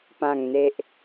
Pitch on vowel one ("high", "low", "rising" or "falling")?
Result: low